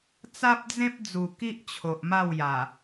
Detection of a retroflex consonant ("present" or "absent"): absent